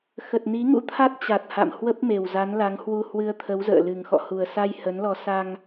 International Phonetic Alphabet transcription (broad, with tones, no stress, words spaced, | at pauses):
xə˨˩t̚ni˨˦ŋṵ˧˥t̪ʰa˦˥t̚ t͡ɕa˨˩t̚ha̰˧˨mhwə˦˥p̚ me˨˩wza˨˦nla˨˦ŋhwu˧ hwɨ˧ə̯t̪ʰə˨˦wzə̰ː˧˨ lɨ˨˩ŋxɔ̰˧˨hu˨˩ə̯sa˧j hə˨˦nlɔ˧ sa˧ŋ